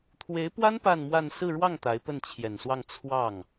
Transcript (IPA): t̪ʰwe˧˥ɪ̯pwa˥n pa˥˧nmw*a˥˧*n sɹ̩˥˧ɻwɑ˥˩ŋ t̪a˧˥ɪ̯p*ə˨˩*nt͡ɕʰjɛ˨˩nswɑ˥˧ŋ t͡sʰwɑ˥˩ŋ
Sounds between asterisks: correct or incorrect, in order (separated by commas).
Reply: correct, incorrect